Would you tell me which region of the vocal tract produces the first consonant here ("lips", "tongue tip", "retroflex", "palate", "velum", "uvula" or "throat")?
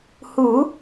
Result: throat